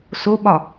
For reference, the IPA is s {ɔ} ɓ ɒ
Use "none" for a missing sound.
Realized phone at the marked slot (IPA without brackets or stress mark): o